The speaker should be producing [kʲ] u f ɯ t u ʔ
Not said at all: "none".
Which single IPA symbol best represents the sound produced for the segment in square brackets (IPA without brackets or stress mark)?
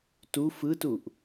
t